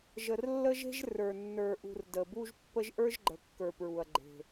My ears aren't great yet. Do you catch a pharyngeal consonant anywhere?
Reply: no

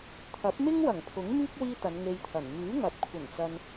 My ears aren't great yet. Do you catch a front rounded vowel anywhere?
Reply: yes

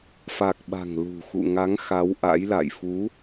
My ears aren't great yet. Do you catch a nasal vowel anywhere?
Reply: no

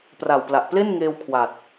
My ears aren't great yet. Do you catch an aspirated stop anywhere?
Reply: yes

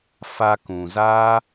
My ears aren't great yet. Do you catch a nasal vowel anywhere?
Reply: yes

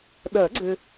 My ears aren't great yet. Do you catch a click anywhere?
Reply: yes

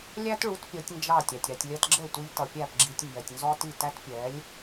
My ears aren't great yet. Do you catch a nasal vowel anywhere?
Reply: no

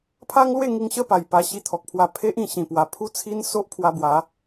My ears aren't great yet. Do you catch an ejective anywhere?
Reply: no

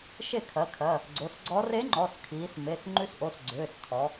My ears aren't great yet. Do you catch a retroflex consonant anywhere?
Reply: no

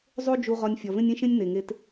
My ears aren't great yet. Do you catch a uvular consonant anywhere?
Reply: yes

